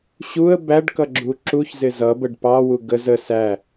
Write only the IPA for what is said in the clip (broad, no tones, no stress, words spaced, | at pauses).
ɕuə̯ bæɖ kʌɡ͡ǁuǁuçzɪ zʌbəɖ pɑwu ɡəz ə sæ